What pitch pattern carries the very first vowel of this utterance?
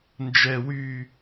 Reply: low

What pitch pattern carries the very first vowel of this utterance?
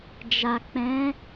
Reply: low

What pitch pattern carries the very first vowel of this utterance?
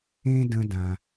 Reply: high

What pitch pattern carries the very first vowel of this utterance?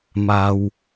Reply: low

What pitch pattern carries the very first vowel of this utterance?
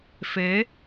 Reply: rising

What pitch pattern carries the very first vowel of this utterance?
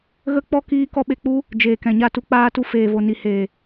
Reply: high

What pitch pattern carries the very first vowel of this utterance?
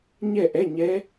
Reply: falling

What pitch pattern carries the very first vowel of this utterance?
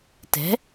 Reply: rising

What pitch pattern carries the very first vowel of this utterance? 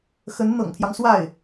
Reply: rising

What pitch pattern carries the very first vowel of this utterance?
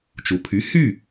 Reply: low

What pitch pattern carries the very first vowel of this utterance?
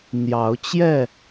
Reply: rising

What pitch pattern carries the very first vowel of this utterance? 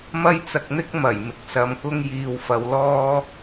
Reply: high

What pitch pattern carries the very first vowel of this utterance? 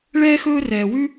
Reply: high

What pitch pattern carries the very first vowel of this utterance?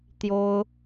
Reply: high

